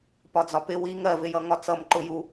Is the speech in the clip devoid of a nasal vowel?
yes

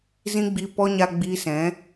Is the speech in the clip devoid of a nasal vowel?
no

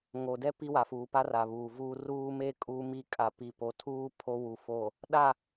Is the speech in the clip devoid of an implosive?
no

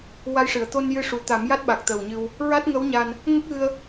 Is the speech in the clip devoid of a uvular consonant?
yes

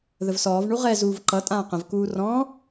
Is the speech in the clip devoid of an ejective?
no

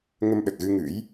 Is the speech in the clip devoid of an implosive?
no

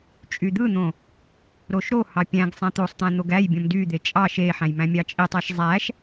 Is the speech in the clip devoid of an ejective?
no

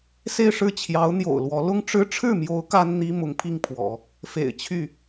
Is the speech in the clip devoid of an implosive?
yes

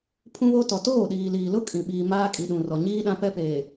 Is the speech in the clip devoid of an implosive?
no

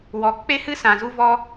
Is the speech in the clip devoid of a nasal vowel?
no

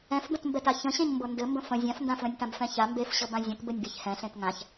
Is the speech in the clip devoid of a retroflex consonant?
yes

